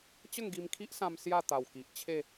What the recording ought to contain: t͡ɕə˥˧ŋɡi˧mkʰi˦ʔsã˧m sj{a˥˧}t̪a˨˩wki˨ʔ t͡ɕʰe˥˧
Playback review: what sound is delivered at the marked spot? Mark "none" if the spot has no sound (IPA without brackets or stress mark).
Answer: a˥˧